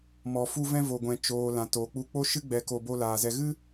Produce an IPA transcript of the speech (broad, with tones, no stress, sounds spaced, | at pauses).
m ɔ˨ f u˧ v ɛ̃˧ v o˨ ɡʷ ɛ̃˨ t͡ʃ oː˨ l ã˨ t oː˨ k͡p u˧ k͡p o˦ ʃ ɨ˦ ɡ͡b ɛ˧ k o˧ b o˧ l aː˨ z ɛ˧ ɣ ɨ˦